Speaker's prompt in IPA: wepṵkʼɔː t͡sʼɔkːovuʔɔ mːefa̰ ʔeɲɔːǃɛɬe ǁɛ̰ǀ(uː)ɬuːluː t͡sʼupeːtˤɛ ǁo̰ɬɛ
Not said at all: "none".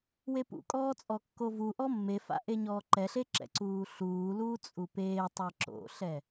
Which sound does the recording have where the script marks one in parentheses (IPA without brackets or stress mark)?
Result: uː